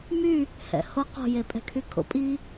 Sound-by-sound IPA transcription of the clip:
m y | h ɛ̰ h o q o̤ j e pʼ ɛ̤ kʰ y kʰ o̰ pʼ i

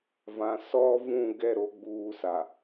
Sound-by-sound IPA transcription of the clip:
v ã˨ s ɔ˦ v ũ˦˨ ɡ ɛ˦˨ ɾ o˨˦ ɡ͡b uː˦ s a˨

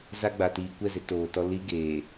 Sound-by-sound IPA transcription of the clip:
z a˦ ɡ͡b a˨ t iː˨ kʷ ɛ˦˨ z ɪ˨˦ t oː˨ t ɔ˦ l i˦ ɡ eː˨

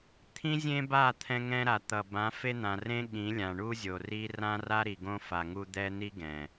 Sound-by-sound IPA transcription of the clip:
t̪ʰ ĩ˦ zʲ ẽ˦ b a˦˨ t̪ʰ ɛ̃˦ ŋ ɛ̃˦ ɾ a˨ t̪ ʌ˨ b ã˨˦ f e˦ n̪ ã˨ r ẽ˦ ɠ ĩ˨˦ lʲ ã˨ ɳ u˦ zʲ o˨ r i˦ r ã˦ r a˦ ɾ i˨ ɡ õ˦ f a˨ ŋ u˦ d̪ ɛ˦ n̪ i˦ ɡ ɛ̃˨

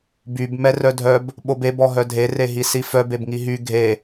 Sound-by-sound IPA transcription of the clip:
b y b m ɛ r œ dʱ œ b | ɓ o b e b ɔ ɦ œ dʱ e r e ɦ i s i f œ b e b ŋ i ɦ y ɡʱ e

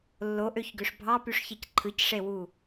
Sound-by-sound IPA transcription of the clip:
lː o ʔ ø ç ɡ ø ʂ bʱ ɑ p y ʂ ç i c ǃʰ ɯ c ʂ e w u

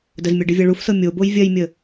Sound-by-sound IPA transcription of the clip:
d ə z mʲ ɜ ɖ ɨ vʲ ɜ ɭ u f s ɤ mʲ o b o j vʲ ɜ j mʲ ə

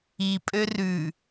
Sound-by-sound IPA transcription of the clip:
i pʼ ø r ʉ

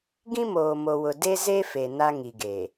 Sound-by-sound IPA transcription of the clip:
ɡ ĩ˦ m oː˨ m o˨ w ʊ˨ d e˦ z e˦ f e˨ n a˦ ŋ i˨ ɡ e˨

